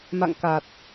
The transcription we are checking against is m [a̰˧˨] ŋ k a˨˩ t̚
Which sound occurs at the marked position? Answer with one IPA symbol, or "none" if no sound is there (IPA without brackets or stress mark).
a̰˧˨